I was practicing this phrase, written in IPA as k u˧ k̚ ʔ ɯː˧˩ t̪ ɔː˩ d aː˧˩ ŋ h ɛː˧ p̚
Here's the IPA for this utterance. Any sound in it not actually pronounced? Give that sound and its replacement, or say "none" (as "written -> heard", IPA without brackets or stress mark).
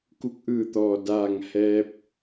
none